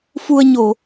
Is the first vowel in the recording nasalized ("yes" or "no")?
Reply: no